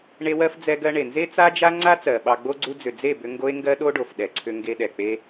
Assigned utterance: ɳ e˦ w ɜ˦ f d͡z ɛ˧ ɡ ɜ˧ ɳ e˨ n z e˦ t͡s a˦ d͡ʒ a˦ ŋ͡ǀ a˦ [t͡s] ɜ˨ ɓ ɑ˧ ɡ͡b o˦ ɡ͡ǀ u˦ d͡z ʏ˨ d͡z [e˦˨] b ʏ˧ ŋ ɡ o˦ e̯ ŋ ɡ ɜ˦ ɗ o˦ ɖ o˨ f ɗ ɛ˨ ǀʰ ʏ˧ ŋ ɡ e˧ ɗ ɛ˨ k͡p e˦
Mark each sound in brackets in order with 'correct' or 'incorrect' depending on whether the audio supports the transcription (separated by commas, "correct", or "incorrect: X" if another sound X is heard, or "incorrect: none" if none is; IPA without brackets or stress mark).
correct, correct